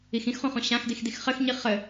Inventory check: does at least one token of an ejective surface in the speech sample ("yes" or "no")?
no